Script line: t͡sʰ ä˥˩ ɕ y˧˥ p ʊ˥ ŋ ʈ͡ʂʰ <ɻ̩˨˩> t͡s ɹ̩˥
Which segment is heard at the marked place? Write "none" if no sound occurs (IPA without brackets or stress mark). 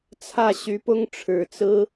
ɻ̩˨˩